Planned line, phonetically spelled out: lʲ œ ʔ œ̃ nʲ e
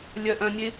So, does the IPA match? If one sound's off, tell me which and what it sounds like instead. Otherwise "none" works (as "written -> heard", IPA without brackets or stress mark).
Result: none